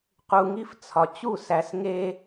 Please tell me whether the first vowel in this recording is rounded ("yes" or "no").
yes